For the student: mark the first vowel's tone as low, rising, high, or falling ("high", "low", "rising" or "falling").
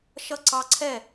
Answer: falling